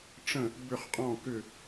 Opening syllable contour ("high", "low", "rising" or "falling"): falling